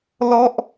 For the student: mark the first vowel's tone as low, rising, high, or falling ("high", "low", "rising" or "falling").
high